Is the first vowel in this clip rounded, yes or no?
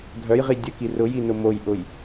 yes